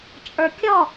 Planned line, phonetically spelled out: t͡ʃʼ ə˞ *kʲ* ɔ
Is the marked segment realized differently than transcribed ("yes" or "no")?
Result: no